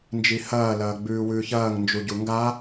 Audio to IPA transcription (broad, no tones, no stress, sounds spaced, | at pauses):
n d͡ʒ i h ɐː l ɐː ɡ͡b ʉː w ʉː ç ɐː ŋ n d͡ʒ u ɟ u ŋ ɡ a